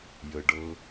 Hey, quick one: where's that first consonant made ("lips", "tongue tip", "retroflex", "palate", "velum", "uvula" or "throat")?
palate